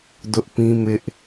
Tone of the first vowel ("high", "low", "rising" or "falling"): high